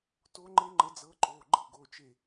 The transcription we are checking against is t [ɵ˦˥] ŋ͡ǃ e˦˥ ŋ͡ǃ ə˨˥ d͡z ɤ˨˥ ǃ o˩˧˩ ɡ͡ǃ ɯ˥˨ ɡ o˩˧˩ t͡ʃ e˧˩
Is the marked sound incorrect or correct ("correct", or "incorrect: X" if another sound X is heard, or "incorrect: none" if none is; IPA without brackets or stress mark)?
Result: incorrect: o˦˥